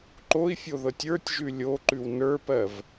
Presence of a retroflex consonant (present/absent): absent